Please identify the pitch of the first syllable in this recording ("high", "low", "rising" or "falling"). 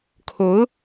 rising